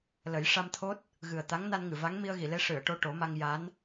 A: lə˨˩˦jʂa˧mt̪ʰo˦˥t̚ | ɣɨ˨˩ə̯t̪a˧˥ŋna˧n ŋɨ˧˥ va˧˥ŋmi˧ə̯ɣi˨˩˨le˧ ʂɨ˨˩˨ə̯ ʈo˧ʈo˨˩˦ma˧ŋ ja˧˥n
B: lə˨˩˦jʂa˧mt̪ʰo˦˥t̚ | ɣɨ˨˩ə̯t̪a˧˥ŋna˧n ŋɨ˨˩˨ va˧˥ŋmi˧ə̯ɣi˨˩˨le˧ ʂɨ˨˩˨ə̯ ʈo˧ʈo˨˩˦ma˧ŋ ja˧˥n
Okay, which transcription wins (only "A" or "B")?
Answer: B